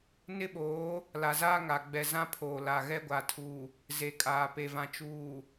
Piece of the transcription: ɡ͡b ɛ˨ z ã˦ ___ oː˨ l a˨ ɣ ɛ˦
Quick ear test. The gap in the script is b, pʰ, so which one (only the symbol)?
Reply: pʰ